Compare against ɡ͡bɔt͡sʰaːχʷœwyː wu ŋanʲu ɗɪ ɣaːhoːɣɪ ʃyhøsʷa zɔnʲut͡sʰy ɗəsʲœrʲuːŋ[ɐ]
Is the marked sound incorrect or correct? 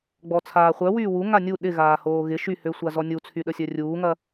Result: correct